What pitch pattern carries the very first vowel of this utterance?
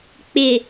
low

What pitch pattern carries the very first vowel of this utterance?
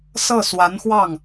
falling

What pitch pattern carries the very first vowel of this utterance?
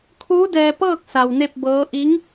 rising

